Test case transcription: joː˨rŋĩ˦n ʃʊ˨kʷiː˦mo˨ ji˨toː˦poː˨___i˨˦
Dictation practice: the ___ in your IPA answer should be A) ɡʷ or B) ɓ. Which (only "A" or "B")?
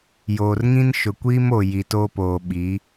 B